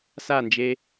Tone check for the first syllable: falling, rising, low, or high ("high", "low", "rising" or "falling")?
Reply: falling